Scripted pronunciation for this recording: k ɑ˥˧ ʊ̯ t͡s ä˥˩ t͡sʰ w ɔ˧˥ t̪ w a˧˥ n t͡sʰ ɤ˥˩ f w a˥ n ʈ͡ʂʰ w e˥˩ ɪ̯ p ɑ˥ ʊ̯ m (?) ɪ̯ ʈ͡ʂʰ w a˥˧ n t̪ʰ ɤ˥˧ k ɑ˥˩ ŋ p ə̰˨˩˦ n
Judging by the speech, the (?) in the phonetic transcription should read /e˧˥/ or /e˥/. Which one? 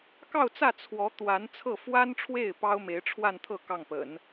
e˧˥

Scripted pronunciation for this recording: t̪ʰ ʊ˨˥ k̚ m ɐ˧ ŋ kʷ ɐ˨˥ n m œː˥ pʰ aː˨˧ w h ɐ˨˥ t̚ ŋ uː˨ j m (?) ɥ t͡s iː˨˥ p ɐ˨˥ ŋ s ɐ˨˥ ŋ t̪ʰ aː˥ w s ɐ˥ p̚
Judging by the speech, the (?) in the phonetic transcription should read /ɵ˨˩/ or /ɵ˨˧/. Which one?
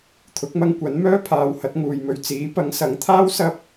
ɵ˨˧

